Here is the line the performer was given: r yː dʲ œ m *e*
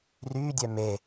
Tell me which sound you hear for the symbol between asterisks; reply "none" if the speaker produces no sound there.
e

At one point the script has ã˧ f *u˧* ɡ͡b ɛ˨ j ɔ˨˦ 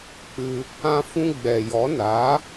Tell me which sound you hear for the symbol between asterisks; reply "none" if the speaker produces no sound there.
ũ˧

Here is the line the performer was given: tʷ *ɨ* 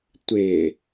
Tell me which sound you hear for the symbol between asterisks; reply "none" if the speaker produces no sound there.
ɪ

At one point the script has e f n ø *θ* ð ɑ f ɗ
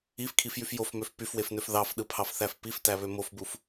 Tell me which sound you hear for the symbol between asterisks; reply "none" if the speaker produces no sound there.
f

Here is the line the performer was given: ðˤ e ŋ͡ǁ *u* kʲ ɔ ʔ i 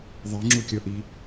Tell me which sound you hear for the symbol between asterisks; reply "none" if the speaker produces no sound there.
u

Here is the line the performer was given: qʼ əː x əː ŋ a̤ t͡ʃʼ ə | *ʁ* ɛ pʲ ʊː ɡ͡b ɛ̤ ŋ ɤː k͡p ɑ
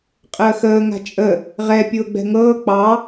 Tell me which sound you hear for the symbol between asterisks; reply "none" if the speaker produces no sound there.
ʁ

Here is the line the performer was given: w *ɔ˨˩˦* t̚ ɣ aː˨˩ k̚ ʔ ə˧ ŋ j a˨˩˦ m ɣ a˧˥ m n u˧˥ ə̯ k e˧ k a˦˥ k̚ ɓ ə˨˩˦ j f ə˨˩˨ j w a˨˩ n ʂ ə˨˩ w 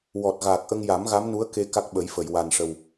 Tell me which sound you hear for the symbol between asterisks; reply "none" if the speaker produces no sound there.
ɔ˨˩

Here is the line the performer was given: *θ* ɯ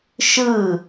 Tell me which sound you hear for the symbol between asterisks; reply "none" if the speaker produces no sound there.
ʃ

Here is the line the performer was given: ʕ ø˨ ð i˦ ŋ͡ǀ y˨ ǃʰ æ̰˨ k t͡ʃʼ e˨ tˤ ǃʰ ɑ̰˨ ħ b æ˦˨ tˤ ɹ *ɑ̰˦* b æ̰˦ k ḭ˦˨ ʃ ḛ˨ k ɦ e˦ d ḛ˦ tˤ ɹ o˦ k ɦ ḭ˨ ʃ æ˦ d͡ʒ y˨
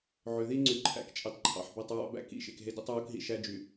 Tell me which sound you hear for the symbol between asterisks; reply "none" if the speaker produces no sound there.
ɑ̰˦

